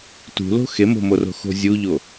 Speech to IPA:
t ṳ l o̤ x e m o̤ m o r o̤ x o̤ zʲ u ʎ o

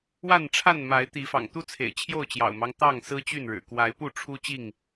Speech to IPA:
w a˥˨ n ʈ͡ʂʰ a˥˨ n m a˨˦ ɪ̯ t̪ i˨˦ f ɑ̰˨˩ ŋ t̪ u˦ t͡sʰ ḛ˨˩ ɪ̯ t͡ɕʰ j o˥˨ ʊ̯ t͡ɕ j ɑ̰˨˩ ʊ̯ m ɑ˦ ŋ t̪ ɑ˥˨ ŋ s ɹ̩˦ t͡ɕ y˥˨ n ɻ ɻ̩˨˩ k w a˨˦ ɪ̯ p u˥˨ ʈ͡ʂʰ u˦ t͡ɕ i˥˨ ŋ

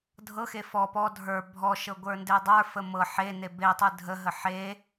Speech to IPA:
dʱ ɤ x e f ɔ p ɔ dʱ ə˞ bʱ ɔ ʃ ɤ ɡʷ ə˞ n d e dˤ ə˞ f ə m ɤ ħ e n e b e tˤ ɯ dʱ ə ɦ ə ħ e

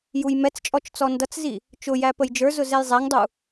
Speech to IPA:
j u j m ɛ t͡s t͡ʃʼ ɔ t͡ʃ t͡s ɔ n d ʌ t͡s z i | t͡ʃ ʊ j æ p ə j d͡ʒ ə˞ z ʊ z ɛ j zˤ æ ŋ dˤ u

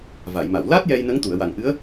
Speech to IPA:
v a˨˩˨ j m a˨˩˨ w l aː˦˥ t̚ j ɛ˧ j n ə˧˥ ŋ t̪ u˨˩˨ ə̯ w a˨˩ ŋ ʔ ɨ˧˥ ə̯

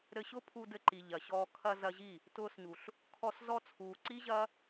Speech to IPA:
ɾ ɘ˧ ɕ ʊ˦ pʰ u˧ d ɘ˧ ǃ i˨ ʎ ɐ˨ ɕ ɔː˧ kʰ ɐ˧ z ɐ˧ ʑ i˦˨ | t ʊː˧ s ɲ u˨ ɬ | kʰ ɔ˧ s z ɔ˧ t͡sʰ uː˨ ǀ i˦ ʑ ɐː˦

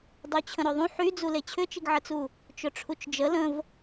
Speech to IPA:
dˤ u t͡ɕʰ ə̃ ɾ ø ðˤ ũ ħ y d͡z u l e t͡ɕʰ ʏ t͡ʃ i ɡ ʕ ə t͡s u | t͡ʃ ʊ ʈ͡ʂʰ u t͡ʃ d͡ʒ ə l ə̃ v

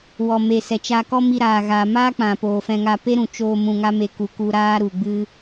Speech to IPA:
w ɔ˨ m e˨ s ɛ˨ t͡ʃ a˧ k ɔ˦ m i˧ ɾ aː˨ ɣ aː˨ m aː˦ k͡p ã˨ p oː˨ f ɛ̃˧ ŋ a˧ p e˦ ɾ ũ˨ t͡ʃ oː˧ m ũ˧ ŋ a˦ m e˧ k u˨ k u˧ ɾ aː˦ ɾ u˨ ɡ͡b ɨ˦

